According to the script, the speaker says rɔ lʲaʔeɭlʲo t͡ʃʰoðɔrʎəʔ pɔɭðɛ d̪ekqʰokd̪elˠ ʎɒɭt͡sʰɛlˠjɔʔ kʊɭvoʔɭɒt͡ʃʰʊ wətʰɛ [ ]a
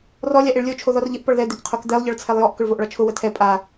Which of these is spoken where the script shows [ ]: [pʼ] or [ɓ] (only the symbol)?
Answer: pʼ